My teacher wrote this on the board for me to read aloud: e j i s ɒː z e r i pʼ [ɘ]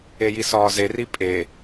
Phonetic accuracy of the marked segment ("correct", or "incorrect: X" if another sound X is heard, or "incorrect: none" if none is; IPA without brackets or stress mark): incorrect: e